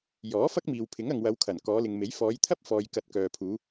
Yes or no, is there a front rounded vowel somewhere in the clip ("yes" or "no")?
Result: yes